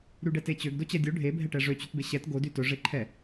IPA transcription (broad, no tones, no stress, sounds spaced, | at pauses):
ɾ y ɖ ɛ t e t͡ɕ ø ɡ d o t͡ɕ ɛ dʲ o ɖʱ e bʱ ɛ ʈ ɛ ʐ ø t͡ɕ y t b e ɕ ɛ t ɡ o d y t ɵ ʐ e ǃʰ ɛ